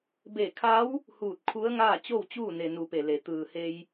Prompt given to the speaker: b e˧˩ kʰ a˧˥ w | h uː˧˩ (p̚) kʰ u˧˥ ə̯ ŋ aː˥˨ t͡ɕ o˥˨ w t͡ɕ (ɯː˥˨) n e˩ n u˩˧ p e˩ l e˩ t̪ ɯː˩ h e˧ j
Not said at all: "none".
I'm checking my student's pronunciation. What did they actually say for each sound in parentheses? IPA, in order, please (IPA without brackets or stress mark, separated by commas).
t̚, uː˥˨